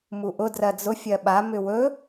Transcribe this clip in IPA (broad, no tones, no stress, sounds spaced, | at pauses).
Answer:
m u ʔ ʊ d r ɜ d͡z ʊ fʲ ɜ ɓ a m ʏ w ɵ